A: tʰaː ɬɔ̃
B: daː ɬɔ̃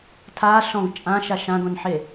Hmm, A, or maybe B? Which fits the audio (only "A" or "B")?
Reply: A